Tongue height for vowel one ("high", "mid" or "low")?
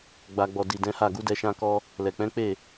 low